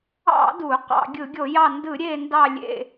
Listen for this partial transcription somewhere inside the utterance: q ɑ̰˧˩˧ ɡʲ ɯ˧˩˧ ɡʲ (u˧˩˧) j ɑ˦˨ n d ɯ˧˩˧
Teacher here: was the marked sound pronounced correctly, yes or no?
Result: no